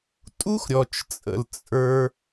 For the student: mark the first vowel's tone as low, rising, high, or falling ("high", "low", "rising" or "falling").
high